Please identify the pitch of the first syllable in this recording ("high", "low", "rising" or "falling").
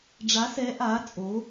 rising